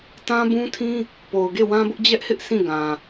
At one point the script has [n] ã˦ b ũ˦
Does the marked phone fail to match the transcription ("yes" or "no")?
yes